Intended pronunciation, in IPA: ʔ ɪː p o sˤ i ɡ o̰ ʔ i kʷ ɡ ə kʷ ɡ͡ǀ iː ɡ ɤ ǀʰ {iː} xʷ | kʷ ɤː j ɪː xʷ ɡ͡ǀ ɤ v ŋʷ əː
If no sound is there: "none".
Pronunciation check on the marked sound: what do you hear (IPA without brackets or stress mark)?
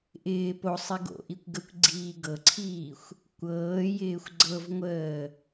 iː